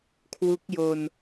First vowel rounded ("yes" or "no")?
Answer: yes